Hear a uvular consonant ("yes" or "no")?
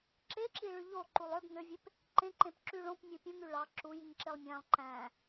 no